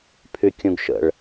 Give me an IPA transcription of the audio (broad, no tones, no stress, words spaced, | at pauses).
pʰykʲũɡʃə̰ɭ